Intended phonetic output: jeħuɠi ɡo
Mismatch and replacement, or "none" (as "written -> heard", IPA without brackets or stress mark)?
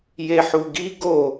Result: ɠ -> ɡ